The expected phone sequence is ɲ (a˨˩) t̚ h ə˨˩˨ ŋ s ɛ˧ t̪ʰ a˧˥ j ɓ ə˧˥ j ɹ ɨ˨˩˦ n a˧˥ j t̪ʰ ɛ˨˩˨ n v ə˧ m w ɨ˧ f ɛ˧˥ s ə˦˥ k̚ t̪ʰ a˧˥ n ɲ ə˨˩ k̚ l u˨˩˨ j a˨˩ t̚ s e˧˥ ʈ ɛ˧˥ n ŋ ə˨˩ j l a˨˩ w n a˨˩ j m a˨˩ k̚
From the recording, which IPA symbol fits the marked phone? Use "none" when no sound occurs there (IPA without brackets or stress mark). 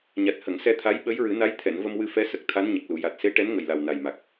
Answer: a˨˩